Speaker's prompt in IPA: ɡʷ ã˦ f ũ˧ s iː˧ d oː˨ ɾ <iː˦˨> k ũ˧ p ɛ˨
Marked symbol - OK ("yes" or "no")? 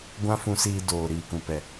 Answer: no